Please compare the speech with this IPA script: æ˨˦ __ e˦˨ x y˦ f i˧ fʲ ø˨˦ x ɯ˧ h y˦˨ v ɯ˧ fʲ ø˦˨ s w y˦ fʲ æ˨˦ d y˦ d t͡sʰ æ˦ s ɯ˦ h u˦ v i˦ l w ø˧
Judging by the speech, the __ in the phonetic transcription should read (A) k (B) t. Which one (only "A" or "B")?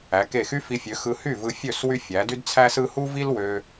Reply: A